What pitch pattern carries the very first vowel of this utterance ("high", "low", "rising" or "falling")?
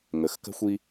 low